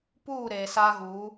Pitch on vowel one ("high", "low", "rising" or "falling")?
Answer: falling